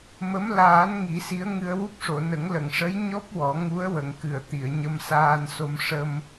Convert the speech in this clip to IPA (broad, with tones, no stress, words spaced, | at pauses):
mə˧˥m laː˨˩˦n ŋi˨˩˦si˧˥ə̯ŋɨ˧ə̯ wu˦˥p̚ʂo˨˩˨nə˨˩˦ŋ lə˨˩˨ŋʂə˧˥j ɲɔ˦˥p̚ wɔ˨˩˦ ŋu˧˥ə̯wə˨˩˨ŋ kɨ˨˩˨ə̯t̪i˨˩˨ə̯ ɲə˧msaː˧nso˧mʂə˧m